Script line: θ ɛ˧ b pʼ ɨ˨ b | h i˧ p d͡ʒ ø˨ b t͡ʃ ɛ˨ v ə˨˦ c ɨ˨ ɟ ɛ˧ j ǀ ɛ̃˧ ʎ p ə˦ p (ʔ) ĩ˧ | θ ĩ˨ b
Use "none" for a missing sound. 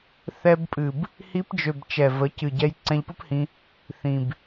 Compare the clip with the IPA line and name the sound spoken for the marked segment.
h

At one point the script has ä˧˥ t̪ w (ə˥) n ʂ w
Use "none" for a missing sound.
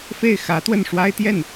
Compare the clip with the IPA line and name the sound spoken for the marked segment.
ə˥˩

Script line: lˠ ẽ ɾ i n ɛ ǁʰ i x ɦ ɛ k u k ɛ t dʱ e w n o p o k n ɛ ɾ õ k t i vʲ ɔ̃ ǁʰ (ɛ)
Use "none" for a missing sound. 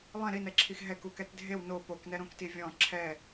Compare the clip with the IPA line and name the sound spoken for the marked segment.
ɛ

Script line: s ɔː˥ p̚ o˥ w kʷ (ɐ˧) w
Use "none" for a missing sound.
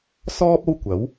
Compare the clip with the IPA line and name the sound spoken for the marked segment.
ɐ˨˥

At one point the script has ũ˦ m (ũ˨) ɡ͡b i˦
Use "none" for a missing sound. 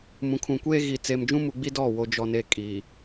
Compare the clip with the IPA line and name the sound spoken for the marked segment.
u˨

